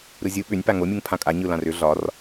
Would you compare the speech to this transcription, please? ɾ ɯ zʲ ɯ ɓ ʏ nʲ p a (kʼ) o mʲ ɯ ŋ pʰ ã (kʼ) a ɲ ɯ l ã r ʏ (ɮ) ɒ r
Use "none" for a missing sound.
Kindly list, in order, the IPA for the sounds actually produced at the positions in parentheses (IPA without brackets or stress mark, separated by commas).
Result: ŋ, kʼ, ɮ